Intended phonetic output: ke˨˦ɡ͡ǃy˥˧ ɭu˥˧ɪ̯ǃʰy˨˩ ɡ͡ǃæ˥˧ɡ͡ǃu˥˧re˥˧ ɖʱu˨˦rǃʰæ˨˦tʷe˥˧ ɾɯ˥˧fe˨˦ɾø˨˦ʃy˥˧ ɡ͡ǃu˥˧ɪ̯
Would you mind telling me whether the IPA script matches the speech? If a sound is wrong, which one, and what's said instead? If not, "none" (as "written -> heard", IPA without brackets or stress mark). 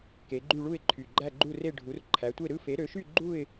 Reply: none